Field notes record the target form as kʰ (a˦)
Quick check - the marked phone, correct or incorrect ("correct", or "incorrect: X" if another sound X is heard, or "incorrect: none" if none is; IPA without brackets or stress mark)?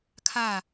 incorrect: a˦˨